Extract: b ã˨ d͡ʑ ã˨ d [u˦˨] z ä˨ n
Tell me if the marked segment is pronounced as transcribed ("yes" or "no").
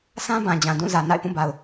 no